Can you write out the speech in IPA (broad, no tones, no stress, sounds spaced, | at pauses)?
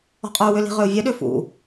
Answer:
ɔ̤ qʼ œ u̯ w ʏ l i̤ ʁ ø u̯ vʲ œ ɗ ø f ṵ